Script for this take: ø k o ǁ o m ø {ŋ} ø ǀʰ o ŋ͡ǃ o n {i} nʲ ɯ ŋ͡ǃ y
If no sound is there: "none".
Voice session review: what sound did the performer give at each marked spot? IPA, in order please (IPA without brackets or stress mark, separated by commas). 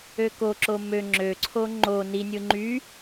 ŋ͡ǁ, i